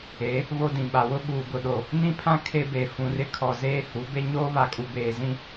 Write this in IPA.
e˨˦ | β o˦ d ĩ˨ ɓ a˨ w ʊ˦ ɓ uː˨ ɡ ʊ˨ ɗ o˨ | n ĩ˦ pʰ ã˦ kʰ e˦ b e˨ f ũ˨ r ɪ˦ kʰ ɔ˨ z eː˦ h u˨˦ b e˦ ɲ oː˦ β a˨ kʼ u˨ b eː˨ z ĩ˦

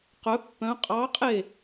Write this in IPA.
q œ pː œ̃ qʼ ɑ qʼ e

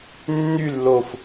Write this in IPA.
nː y lː o f

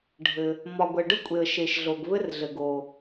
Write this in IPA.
ɖʱ ɘ˩ | m ɒ˩ ɡʷ ɛ˩ ɖ ə˧ kʷʼ e˩ ə̯ ʃ e˩ ʃ ɮ o˩ ɡ β ɘ˧ r ɮ ɘ˩ ɡ o˩

